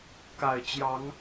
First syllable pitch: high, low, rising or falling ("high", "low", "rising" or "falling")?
low